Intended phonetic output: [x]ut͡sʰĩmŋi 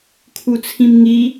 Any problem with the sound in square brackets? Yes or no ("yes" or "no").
yes